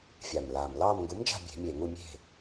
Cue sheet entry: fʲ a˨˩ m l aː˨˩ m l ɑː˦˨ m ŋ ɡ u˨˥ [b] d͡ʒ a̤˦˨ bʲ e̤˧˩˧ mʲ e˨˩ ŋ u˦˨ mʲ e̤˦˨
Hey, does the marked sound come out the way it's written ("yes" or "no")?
no